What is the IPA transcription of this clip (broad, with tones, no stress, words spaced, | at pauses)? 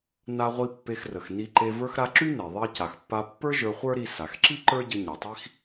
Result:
na˧ʁʷi˧ pːe˧xrə˩xni˧ǃe˧ və˞˧xɾa˧ ǁy˥ne˩ ðˤi˧ɐ̯ca˩xpːa˧ pːə˞˥ ʒə˞˧χʷə˞˥ɾi˧ sa˩xǁi˥ ǃə˞˥ɟə˧ ɲa˩tˤi˧x